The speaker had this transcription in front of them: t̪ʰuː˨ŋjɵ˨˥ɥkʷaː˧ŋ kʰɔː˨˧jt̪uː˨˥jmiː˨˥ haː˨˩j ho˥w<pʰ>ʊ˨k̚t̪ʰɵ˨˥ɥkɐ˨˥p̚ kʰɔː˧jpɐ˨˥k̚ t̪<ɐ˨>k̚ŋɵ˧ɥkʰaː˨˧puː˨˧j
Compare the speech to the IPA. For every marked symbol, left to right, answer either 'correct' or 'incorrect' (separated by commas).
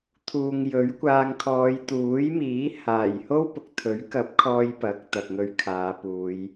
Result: incorrect, correct